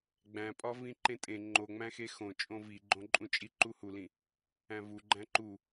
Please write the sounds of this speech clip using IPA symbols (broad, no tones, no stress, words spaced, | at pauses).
ɡ͡bæ̃pʼɒ vĩǃẽtʼẽ ŋ͡ǃo ŋ͡mæ̃xexõ t͡ʃʼõviɡ͡ǃõǃʼũ t͡ʃʼiǃuhulĩ | æ̃vu ɡ͡ǃæ̃ǃu